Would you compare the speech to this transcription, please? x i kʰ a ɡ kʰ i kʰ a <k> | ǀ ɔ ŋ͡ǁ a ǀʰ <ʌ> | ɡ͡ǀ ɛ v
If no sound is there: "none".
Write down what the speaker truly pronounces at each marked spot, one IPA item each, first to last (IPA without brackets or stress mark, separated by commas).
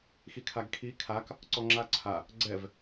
k, a